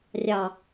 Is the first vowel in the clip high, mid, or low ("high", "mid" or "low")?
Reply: low